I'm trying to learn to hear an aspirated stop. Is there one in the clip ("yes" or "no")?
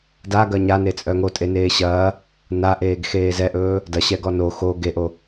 no